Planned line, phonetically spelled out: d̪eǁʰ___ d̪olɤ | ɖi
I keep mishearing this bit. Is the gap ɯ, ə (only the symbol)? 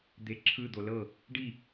ɯ